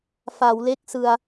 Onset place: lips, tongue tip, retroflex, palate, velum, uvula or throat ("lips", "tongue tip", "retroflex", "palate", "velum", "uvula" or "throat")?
lips